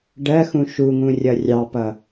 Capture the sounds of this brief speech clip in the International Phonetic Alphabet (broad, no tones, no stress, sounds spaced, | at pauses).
ɖ ɜ x ũ ʃ u ŋ ũ rʲ ʌ rʲ ɑ p ʌ